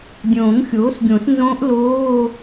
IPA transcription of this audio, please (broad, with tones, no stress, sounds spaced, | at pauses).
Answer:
dʲ õː˨˩˦ ŋ xʲ oː˩˥ s ɡʲ õ˨˩˦ s n z õː˦˥ ʔ l oː˧˥˧